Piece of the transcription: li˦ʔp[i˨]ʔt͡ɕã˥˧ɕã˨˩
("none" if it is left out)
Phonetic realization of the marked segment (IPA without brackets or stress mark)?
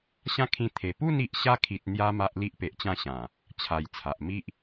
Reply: e˨